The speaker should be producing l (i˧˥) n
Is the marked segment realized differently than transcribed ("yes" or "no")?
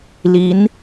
no